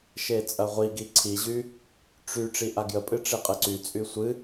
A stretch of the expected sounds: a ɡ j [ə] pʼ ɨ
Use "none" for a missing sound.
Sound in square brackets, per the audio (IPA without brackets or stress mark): ə